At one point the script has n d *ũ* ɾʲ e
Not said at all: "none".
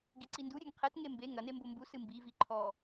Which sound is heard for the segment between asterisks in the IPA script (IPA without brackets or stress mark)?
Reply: u